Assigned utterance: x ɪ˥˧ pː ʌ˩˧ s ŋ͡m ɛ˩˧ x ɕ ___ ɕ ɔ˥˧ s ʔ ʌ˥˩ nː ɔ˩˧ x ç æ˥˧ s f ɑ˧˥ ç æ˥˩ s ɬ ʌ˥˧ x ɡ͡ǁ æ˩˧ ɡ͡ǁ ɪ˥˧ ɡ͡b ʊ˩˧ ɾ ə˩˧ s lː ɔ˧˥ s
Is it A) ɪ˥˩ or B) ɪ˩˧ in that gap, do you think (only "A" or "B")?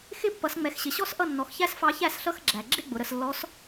B